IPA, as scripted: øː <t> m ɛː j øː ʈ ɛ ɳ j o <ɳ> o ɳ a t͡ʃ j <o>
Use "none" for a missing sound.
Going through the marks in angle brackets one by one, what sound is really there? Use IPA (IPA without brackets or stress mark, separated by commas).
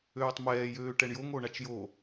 tˤ, ŋ, o